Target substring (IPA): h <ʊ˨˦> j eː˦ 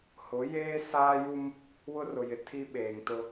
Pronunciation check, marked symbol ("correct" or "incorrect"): correct